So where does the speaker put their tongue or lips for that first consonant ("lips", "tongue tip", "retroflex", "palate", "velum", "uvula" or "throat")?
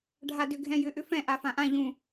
retroflex